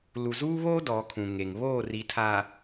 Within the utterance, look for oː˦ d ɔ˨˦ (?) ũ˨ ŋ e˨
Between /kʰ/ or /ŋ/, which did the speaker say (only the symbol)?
kʰ